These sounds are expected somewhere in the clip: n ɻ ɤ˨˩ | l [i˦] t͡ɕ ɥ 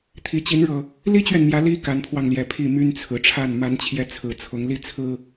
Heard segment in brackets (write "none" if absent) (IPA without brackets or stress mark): i˦